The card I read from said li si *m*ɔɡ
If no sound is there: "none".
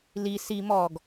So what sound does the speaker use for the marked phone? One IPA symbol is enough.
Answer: m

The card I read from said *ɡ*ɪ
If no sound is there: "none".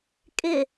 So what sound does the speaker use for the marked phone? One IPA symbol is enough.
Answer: kʼ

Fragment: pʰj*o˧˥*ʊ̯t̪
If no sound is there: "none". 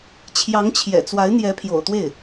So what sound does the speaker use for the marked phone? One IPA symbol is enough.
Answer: o̰˨˩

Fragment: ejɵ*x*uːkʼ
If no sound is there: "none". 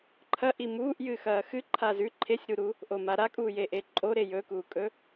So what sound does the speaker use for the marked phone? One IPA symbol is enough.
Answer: k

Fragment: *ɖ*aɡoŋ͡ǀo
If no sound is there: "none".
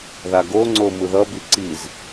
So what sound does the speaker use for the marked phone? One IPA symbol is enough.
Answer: ð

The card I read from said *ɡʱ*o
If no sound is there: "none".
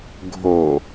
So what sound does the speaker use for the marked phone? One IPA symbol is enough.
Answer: ɡʱ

